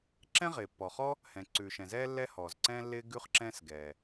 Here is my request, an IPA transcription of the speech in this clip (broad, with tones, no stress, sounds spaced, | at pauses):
ǁ ɛ̃˥ ʁ ɪː˩ pː ɔ˩ χ ɔ˥ | h ɛ̃˩ ǀ ʉ˩ ʃ ɛ̃˩ z ɛː˥ lː ɛ˥ h ɔː˩ z ǀ ɛ̃ː˥ lː ɪː˥ ɡ ʉ˥ χ ǁ ɛ̃ː˥ s ɡ ɛː˩